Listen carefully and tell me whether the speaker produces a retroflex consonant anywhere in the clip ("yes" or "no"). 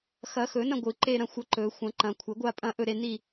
no